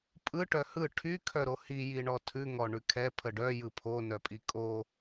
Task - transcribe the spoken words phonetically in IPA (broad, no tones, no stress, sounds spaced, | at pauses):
pʼ ɯ ʈ œ h ɯ ʈʰ y kʰ œ ɾ o h i j i ɳ ɔ tʰ ʉ ŋ ɔ ɳ ʉ kʰ ɛ pʰ ə ɖ œ j ɯ pʰ o n œ pʼ i kʼ o